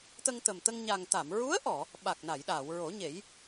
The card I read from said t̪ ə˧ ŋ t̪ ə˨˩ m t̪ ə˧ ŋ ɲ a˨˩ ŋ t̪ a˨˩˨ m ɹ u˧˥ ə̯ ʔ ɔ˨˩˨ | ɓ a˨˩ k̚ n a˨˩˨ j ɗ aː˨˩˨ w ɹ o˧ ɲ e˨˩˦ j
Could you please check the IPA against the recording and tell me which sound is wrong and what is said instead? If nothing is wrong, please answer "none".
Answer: o˧ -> o˨˩˦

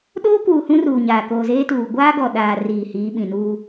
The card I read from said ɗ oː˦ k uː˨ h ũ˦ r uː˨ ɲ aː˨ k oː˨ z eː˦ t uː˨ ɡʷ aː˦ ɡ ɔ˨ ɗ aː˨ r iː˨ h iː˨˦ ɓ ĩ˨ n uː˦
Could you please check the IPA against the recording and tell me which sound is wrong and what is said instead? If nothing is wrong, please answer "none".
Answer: none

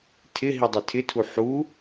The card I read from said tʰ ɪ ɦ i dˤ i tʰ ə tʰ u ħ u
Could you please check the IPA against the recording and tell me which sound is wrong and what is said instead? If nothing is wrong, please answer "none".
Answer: ə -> ɪ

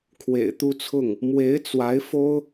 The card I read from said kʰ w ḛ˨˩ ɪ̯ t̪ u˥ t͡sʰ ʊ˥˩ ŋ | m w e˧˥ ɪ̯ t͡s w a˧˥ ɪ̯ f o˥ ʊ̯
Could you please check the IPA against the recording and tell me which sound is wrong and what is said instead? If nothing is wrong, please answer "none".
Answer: none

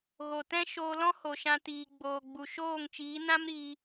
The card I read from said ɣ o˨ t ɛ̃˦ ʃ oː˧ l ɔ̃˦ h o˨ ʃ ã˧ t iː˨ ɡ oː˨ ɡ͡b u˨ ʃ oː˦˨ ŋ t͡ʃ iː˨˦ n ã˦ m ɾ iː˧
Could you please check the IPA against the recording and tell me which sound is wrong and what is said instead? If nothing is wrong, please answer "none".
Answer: ɡ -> ɡ͡b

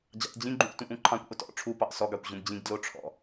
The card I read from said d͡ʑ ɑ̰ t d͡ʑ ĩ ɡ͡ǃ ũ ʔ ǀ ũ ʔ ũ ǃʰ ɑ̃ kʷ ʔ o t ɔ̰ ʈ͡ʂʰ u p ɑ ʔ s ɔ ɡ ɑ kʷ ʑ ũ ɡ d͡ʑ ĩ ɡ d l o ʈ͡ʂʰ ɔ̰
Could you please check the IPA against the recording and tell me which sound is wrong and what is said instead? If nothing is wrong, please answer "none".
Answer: ǀ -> t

